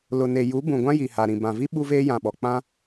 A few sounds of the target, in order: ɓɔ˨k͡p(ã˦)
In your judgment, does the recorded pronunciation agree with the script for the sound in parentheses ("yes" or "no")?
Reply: yes